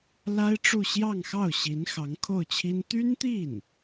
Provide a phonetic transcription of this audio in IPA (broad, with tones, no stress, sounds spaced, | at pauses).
l a˥ ɪ̯ ʈ͡ʂ u˥˧ ɕ j ɑ˥˧ ŋ x ɑ˥˩ ʊ̯ ɕ i˧˥ n x ɑ˧˥ ŋ kʰ o˥˩ ʊ̯ t͡ɕʰ i˥ n t̪ y˥ n t̪ i˥˩ n